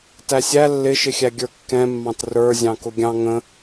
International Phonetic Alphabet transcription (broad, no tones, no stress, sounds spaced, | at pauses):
t æ sʲ æ lː ɪ ʃ ɪ xʲ æ ɡʲ ə˞ kː ɛ̃ mː ɑ̃ t r ə˞ zʲ ɑ̃ k ʊ ɡʲ ɑ̃ ŋ ə̃